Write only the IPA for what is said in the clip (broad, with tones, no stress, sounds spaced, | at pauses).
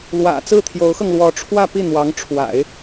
l w ä̰˨˩ t͡s ɹ̩˥˩ t̪ʰ j o˧˥ ʊ̯ x ɤ˧ ŋ l w ɔ˧˥ ʈ͡ʂʰ w ä˥˧ p i˥˩ n̪ w ɑ˧˥ ŋ ʈ͡ʂʰ w a̰˨˩˦ ɪ̯